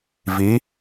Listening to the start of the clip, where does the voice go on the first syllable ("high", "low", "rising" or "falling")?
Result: rising